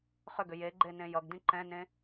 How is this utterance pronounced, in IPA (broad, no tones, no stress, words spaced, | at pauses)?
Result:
χʏɡʏ jeɡ͡ǃenẽ jʌɡdĩ ǃɛ̃nẽ